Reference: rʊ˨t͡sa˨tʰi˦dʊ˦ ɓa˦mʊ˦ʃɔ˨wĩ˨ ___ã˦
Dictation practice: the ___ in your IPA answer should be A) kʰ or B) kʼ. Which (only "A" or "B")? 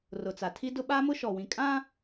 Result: B